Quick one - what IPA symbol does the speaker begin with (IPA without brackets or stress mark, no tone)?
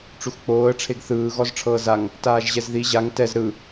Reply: ʈ͡ʂ